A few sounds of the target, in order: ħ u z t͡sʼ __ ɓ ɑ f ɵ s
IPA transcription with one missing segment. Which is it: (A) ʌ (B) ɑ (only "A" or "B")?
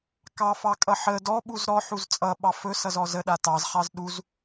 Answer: A